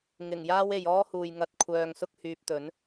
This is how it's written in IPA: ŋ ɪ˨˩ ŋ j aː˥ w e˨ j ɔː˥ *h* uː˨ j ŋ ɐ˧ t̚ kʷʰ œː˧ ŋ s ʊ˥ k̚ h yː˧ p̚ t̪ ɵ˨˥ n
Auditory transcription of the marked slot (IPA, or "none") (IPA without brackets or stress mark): h